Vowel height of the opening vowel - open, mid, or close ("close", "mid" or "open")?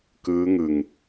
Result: close